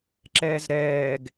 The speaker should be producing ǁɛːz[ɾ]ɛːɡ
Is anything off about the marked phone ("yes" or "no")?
no